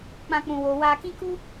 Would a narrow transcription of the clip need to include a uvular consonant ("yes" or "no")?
no